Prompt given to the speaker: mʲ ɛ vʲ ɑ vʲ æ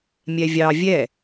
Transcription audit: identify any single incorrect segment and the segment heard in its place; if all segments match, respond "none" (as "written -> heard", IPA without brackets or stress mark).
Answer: æ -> ɛ